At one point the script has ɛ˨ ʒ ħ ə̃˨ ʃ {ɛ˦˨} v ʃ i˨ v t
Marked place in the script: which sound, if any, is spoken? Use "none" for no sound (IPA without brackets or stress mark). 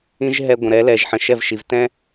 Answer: ɛ˦˨